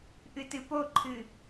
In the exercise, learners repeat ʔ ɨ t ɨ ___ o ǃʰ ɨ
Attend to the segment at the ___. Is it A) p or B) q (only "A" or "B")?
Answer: A